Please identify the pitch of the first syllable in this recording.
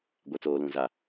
low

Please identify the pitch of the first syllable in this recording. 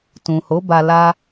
low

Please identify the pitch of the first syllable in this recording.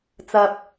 high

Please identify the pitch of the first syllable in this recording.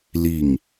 falling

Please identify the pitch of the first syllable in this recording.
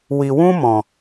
low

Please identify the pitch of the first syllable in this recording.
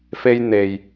high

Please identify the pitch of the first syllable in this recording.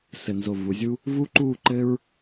low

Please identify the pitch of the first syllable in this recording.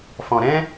low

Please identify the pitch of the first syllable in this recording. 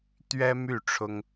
high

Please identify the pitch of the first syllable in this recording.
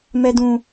high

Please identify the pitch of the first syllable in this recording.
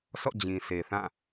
falling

